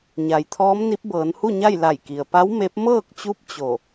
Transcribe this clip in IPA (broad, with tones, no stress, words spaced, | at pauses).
ɲa˩˧jt̪ʰɔː˧˥mni˧˥p̚ bɤː˩˧nhu˥˨ɲa˥˨j la˧˩jki˩ə̯ pa˧˥w me˧˥p̚ mɤː˥˨k̚t͡ɕu˧˥p̚ t͡ɕo˧˩